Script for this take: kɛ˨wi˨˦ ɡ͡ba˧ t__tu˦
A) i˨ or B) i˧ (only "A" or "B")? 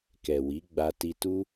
B